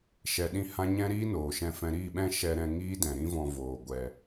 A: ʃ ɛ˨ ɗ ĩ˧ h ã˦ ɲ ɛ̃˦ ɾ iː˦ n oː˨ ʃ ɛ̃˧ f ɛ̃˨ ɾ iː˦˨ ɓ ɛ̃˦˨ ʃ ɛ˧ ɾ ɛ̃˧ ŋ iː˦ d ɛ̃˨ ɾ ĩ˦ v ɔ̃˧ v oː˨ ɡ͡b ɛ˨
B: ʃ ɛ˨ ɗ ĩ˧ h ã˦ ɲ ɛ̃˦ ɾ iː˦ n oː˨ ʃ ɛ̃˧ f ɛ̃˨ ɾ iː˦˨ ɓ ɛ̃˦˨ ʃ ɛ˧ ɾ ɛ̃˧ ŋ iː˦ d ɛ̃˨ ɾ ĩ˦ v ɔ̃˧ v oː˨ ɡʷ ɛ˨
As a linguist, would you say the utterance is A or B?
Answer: B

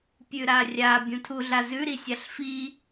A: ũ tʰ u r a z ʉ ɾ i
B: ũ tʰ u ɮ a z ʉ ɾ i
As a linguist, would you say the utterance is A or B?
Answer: B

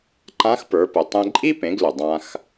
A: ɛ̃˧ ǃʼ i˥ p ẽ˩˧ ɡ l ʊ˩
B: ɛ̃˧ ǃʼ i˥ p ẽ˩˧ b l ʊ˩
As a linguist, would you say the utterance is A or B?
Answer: A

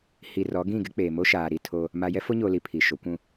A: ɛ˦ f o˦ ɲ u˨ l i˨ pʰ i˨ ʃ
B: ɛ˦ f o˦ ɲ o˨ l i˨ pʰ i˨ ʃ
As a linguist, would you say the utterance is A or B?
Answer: B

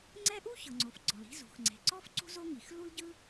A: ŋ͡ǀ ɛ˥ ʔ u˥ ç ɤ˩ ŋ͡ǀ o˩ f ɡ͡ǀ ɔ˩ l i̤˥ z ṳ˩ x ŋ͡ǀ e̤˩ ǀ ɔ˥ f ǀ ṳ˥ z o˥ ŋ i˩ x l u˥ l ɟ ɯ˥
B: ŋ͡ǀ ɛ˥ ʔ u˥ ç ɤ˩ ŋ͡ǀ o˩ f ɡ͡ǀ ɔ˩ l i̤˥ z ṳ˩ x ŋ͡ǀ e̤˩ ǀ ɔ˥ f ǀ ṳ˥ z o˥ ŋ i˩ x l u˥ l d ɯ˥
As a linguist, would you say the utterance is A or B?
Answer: A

